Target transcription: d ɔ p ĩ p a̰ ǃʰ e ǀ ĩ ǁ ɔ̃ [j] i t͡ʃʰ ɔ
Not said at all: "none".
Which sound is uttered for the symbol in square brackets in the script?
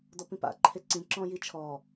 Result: j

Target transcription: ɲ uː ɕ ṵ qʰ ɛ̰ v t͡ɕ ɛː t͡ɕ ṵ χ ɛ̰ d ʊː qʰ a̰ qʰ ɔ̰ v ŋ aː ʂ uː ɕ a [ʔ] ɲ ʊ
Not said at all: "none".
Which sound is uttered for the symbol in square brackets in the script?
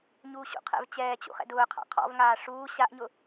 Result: ʔ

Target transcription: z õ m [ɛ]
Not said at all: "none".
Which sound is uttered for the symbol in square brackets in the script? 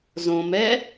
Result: ɛ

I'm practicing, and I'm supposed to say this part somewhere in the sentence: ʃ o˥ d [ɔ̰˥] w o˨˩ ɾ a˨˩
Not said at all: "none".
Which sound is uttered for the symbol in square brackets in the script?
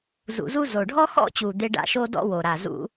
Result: ɔ̰˥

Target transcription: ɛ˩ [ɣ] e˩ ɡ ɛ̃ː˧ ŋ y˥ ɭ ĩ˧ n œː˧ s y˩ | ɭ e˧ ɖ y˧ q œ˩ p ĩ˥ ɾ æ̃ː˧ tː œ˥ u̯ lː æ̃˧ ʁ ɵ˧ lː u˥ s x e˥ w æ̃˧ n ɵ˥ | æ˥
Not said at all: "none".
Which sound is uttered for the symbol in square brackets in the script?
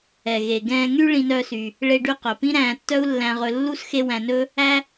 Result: ɣ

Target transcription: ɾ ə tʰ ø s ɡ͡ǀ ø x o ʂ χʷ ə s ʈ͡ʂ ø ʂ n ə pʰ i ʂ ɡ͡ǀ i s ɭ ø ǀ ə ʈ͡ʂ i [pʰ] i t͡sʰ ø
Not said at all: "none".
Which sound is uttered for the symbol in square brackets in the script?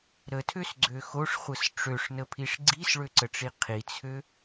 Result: qʰ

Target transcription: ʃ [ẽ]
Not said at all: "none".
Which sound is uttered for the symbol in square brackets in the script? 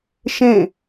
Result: ẽ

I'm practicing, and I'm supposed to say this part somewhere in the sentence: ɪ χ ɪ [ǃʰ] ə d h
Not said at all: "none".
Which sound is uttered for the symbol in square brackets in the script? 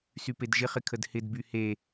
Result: kʰ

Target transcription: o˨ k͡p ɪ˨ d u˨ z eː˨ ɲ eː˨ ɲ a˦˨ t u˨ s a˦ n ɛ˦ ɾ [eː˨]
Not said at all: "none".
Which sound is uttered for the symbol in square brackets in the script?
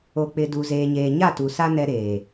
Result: eː˨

